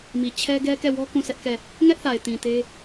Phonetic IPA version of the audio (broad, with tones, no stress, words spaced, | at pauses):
mi˨ t͡ɕʰɛ˦ ɡɛ˦kɛ˦˨wɔ˦ kũ˦˨sʰɛ˦ʔ kɛ˦˨ | ŋɛ˦ʔθa˨ɪ̯tĩ˨ te˦